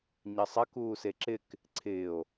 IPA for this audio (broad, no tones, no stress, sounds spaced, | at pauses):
ɲ ɐ sˤ ɐ k uː s e ǁ ɪ k | ǀʰ ɪː o̯